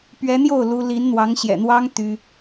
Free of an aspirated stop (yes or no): yes